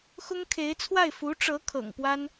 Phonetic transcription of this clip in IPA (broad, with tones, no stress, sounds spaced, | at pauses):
x ʊ˥ ŋ kʰ e˧˥ ɪ̯ t͡sʰ w a˥˩ ɪ̯ f u˧˥ ʈ͡ʂ ɤ˧˥ kʰ ɤ̰˨˩ ŋ p w a˥ n